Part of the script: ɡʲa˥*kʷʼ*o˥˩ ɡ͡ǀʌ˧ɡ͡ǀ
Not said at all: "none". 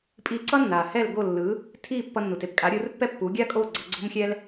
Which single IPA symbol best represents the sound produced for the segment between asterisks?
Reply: kʼ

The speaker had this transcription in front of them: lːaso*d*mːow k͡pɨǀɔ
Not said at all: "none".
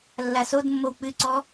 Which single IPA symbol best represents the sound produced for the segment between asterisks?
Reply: d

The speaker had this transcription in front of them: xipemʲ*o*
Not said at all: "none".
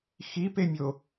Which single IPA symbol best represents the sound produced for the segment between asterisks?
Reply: o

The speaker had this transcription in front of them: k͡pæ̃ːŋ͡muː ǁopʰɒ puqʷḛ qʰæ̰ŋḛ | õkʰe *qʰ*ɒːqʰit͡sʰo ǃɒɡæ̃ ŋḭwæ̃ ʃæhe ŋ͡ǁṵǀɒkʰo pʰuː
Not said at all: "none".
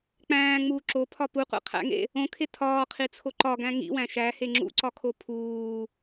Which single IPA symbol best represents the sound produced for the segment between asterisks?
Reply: tʰ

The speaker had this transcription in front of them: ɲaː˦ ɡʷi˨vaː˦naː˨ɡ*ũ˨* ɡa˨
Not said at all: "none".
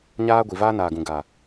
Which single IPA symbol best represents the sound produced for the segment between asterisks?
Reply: ũ˨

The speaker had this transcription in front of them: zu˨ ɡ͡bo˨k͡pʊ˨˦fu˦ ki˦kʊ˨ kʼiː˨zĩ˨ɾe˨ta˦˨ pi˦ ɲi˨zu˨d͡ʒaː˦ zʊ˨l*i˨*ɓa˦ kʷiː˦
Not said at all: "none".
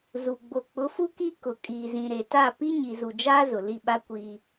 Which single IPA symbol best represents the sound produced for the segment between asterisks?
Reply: i˦˨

